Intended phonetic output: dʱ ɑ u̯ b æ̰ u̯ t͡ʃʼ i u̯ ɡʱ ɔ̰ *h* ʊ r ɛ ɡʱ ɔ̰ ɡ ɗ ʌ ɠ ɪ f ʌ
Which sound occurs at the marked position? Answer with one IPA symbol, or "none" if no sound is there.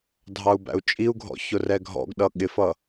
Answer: ç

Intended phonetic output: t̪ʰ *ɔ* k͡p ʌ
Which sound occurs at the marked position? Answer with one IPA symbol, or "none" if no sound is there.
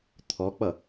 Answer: ɔ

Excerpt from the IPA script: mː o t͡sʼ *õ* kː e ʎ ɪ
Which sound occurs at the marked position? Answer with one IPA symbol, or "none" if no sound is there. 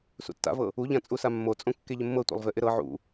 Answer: õ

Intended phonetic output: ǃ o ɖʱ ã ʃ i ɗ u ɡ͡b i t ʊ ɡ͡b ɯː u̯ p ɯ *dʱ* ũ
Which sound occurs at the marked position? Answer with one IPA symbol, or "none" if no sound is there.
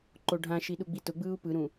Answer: ɾ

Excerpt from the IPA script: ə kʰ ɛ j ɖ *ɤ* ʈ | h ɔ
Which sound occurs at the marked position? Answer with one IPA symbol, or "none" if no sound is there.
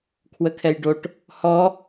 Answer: o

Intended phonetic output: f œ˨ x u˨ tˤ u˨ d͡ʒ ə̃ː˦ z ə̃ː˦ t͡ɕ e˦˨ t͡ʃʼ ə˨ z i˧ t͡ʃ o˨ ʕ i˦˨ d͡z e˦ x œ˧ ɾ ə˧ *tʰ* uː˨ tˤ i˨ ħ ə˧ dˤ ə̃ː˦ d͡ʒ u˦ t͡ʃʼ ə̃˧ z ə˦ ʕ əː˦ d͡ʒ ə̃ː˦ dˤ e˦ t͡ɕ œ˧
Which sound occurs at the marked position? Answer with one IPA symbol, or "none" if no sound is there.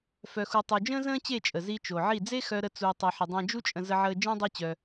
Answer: t͡s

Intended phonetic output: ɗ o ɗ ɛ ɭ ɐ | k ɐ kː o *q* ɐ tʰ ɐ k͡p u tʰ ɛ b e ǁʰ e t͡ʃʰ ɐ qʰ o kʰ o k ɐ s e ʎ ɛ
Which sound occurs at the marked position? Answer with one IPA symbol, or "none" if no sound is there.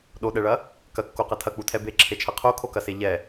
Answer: q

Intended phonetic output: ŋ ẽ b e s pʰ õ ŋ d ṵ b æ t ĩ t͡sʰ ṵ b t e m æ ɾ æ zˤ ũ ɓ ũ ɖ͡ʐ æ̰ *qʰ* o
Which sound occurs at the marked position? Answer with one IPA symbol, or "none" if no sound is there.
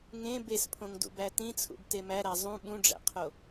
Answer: qʰ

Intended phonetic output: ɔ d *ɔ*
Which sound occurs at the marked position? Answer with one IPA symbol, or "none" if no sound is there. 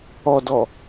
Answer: ɔ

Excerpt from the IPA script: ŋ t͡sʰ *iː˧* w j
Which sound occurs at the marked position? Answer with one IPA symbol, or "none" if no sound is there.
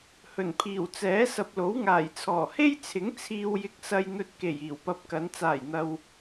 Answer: iː˧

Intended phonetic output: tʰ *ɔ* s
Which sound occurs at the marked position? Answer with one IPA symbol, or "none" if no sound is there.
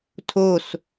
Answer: o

